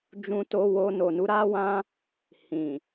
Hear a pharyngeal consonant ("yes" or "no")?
no